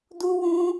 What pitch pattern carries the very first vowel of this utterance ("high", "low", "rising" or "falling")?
high